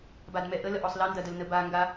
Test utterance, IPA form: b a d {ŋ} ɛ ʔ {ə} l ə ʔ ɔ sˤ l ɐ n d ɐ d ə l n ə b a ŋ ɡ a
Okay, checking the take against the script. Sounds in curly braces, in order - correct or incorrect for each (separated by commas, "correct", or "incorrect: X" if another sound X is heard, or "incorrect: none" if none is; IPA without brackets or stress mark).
incorrect: m, correct